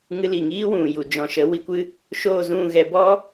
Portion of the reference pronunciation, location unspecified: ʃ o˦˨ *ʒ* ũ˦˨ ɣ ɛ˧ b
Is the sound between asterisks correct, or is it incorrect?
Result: incorrect